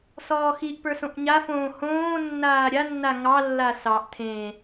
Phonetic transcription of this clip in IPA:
s ɔː x i ʔ p ə˞ s õ ʔ ɲ a f õː h õː nː aː ɾʲ a nː a ŋ ɑ lː a s ɑ ʔ tʰ ẽ

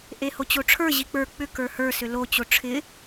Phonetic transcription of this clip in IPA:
ʔ e h o t͡ɕ o ʈ͡ʂʰ ə˞ ʑ i k͡p ə˞ k͡p ʏ k ə˞ h ə˞ s ʏ l o t͡ɕ o ʈ͡ʂʰ ɪ

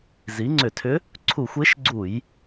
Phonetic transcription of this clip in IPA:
z i˩˥ ŋ͡ǀ ʏ˧˩˧ tʰ ʏ˧˥ | ǀʰ u˧˩˧ xʷ e˧˥ ʃ ɡ͡ǀ u˧˩˧ j

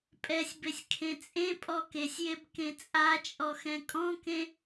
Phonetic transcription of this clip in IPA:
pʼ ɛ sʲ b e sʲ kʰ ẽ t͡sʼ ẽ pʼ ɔ k e sʲ j e b k ẽ t͡sʼ a t͡ʃʼ ɔ x ɛ̃ kʼ ɔ̃ k ẽ

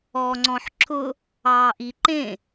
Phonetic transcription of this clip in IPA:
ɔː ŋ͡ǀ ɔ̃ ħ ǁʰ ʊ | ɑː ʔ i ǃ ẽ

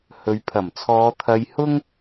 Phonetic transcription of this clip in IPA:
h ɵ˨ ɥ pʰ ɐ˨˩ m t͡sʰ ɔː˨˧ t̪ʰ ɐ˧ j h ʊ˥ ŋ

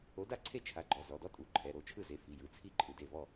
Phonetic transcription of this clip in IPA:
o˨˥ d a˥˩ ǀʰ e˥˩ t͡ʃʰ a˨˥ ɡ͡ǃ ɔ˩˧˩ z ɔ˩˧˩ d ɔ˥ tʼ u˩˧˩ ǃʰ ɛ˩˧˩ ɾ o˥˩ t͡ʃʰ ɯ˥˩ z e˨˥ f i˩˧˩ j ɯ˩˧˩ t͡sʰ i˥˩ ǃʼ ɯ˩˧˩ d e˥˩ v ɔ˥˩

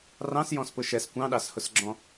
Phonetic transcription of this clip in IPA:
r ɑ̃ s j ɔ̃ s p ʊ ʃ ɛ s kʷ ɑ̃ ɗ ɑ s h ʊ s ɡ͡ǁ ɔ̃

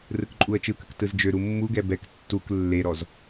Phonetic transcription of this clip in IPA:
r ɯ k ǃʼ u ə̯ t͡ʃ ɯ k ə k t ɯ z d͡ʒ ø ɾ u mː u ɡ ɛ b ɛ k tː u k lː e ɾ ɔ z

